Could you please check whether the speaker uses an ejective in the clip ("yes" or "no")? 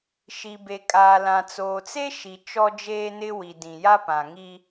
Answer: yes